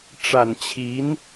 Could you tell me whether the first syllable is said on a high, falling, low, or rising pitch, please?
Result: low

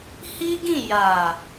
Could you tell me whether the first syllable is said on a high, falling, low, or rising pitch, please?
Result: high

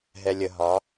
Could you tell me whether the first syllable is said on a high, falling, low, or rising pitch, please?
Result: low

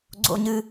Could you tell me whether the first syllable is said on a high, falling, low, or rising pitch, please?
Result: high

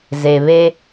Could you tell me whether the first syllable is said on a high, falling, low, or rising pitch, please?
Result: low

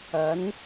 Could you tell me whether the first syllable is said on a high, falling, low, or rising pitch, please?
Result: rising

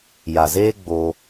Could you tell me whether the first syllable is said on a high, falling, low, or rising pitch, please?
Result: low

